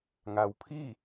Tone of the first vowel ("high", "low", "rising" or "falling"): low